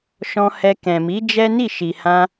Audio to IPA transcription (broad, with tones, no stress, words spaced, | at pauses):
ʃɔ̃˧hɛ˧ kɛ̃˨mi˨˦ d͡ʒɛ˦ni˦˨ ʃi˨hã˧